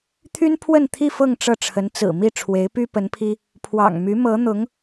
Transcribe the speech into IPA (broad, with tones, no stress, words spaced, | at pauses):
t̪ʰy˥npʰwə˥˧nt̪ʰi˥˧ fɤ˥˧ŋ ʈ͡ʂɤ˥˩ʈ͡ʂʰə˧˥nt͡sɹ̩˨˩ mi˥˩ ʈ͡ʂʰwe˧˥ɪ̯py˥pə˧˥npʰi˥ | pʰwɑ̰˨˩ŋ my˧˥mɤ˧˥n̪ʊ˧˥ŋ